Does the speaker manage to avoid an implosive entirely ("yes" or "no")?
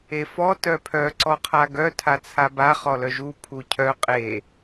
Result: yes